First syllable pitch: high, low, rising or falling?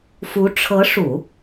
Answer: rising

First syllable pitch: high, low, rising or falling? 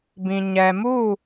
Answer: low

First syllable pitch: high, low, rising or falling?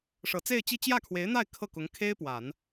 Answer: low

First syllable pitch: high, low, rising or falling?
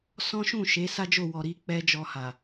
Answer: high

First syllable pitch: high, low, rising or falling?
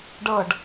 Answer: falling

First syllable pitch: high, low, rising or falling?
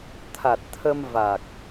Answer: low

